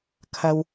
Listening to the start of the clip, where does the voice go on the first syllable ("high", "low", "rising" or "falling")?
low